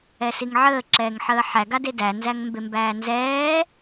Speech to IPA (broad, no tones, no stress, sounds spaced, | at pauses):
ɛ s i ŋ ʕ əː ǁ ɛː ŋ ħ əː ħ æ ɡ a d e d æ n z æ ŋ m b e m b æː n z ɛː